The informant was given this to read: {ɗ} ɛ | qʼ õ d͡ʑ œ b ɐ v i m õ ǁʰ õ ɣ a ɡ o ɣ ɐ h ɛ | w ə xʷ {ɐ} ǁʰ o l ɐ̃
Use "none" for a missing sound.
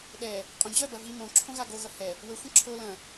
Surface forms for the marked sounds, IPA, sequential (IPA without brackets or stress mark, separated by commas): ɗ, ɐ̃